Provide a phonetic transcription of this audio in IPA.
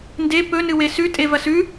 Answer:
nde pɵnɨwe sʉtʼevɐ sʉ

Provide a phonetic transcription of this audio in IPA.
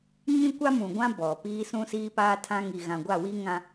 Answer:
ɲĩ˦kʷa˦mũ˨ɡʷã˦ bɔ˨piː˦ sũ˦siː˦paː˦tʰã˦ ŋi˨ɣã˨ɡʷa˦˨wi˦ ŋã˦

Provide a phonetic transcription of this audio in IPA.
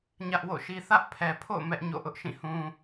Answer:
ɲä˦ʔwo̰˦˨ʃi˦ θä˦ʔpʰɛ˨pʰo̰˦˨ʊ̯ mɛ˦ʔɲo̰˦˨ ʔʊ˦ʔʃĩ˦˨hũ˦

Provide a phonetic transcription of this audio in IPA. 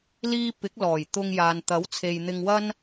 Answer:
liː˥ pɪ˨˥k̚lɔː˨˩jt̪ʊ˧ŋjaː˨n t̪ɐ˨˥wt͡sʰe˨jn̪ɪ˧ŋwɐ˥n

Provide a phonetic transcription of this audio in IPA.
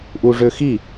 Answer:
ʔuʐøxi

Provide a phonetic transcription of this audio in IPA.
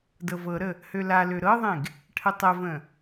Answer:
dɤvɤɾə | hølalø ɾɤðˤẽɡ | ʈʰətˤəvə̃

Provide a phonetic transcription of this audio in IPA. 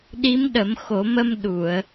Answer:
ɗi˧˥mɗə˨˩˦mxo˨˩˦mə˧m ɗu˨˩˨ə̯

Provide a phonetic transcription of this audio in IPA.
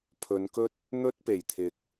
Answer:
pʰɵ˨˧nkɵ˥t̚ | n̪ɵ˥t̚pe˨˩jt̪ʰɪ˨˥k̚

